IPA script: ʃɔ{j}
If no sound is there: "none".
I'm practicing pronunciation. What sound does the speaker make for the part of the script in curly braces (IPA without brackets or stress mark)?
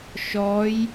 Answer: j